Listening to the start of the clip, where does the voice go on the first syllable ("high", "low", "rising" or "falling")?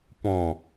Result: low